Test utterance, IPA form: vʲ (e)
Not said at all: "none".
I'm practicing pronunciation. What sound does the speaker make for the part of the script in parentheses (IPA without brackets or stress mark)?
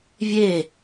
e